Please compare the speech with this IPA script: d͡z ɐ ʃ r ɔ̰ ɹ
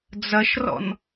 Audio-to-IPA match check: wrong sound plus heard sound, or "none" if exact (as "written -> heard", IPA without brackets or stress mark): ɹ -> n